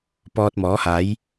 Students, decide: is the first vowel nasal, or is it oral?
oral